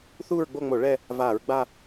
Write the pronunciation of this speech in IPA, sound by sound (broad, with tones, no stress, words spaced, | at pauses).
θuː˥˧ɹɡ͡bo˥˧ŋ͡mo˧˩˧ ɭɛ˥˧ | vaː˧˩˧ɹɡ͡ba˥˧